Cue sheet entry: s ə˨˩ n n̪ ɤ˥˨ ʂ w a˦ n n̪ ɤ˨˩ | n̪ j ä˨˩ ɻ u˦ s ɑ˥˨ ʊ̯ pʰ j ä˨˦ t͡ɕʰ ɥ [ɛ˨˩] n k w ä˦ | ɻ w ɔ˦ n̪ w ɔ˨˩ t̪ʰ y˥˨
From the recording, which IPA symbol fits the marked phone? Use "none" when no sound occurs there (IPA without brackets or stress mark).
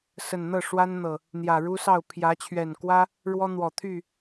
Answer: ɛ˨˩